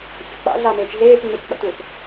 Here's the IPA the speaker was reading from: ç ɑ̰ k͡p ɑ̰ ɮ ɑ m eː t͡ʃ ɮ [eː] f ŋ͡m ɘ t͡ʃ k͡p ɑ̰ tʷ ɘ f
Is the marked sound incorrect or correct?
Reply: correct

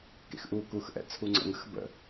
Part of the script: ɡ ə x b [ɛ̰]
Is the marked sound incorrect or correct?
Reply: incorrect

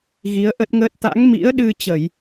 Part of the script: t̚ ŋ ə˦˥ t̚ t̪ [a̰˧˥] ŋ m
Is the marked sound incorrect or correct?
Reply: correct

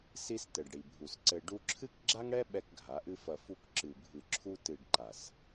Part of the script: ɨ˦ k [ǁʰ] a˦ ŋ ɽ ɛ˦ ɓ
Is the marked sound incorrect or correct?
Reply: incorrect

